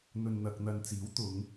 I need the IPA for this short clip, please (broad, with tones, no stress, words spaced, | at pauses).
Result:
n̪ɵ˨nn̪ɐ˨k̚n̪ɐ˨nt͡siː˨˥w t̪ʊ˨˧ŋ